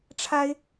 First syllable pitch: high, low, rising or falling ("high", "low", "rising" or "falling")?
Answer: high